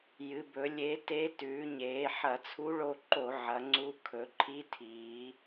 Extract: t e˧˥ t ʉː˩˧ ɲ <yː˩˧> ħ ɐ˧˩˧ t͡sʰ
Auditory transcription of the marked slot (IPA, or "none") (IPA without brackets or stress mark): eː˩˧